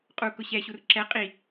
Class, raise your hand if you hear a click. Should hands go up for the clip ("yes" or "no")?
yes